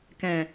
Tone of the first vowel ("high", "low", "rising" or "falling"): low